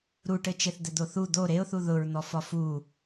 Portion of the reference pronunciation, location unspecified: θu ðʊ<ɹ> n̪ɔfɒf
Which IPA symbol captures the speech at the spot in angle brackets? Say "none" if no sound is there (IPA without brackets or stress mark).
ɹ